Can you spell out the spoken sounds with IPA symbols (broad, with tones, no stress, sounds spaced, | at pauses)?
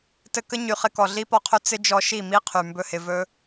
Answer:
t ɘ˧ k ə˦ ɲ y˨ χ ɪ˧ k ɔ˨ ɮ i˦ p ɔ˧ qʰ ɵ˦ t͡s ɪ˦ d͡ʒ ɔ˧ ʃ i˦˨ m i˦ qʰ y˨ m b ɵ˦ h ɪ˧ v ɵ˦